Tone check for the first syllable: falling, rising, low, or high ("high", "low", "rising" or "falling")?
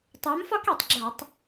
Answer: rising